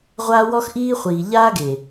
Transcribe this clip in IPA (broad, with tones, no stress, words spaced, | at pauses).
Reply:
ʁʷaː˦wɔ˦xʔiː˦χʷiː˨ ʎaː˦ɡe˨